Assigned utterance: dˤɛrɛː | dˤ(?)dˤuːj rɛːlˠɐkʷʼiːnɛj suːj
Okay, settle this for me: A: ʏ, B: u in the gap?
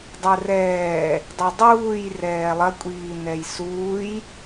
A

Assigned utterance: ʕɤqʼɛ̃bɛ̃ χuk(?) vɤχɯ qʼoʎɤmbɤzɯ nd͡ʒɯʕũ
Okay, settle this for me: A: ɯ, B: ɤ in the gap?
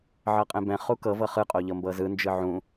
B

